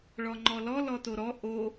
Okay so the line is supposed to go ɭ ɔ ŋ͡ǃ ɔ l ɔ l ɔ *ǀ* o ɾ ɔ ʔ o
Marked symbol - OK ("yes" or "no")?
no